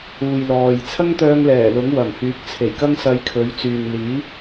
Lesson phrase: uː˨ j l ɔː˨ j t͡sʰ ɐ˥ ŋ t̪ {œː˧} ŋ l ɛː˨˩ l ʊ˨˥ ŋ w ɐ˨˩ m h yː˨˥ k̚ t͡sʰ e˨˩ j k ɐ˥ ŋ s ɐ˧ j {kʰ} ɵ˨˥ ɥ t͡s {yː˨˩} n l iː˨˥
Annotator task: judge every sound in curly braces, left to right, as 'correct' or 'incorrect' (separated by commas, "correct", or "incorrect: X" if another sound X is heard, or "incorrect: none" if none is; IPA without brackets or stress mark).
correct, correct, incorrect: yː˨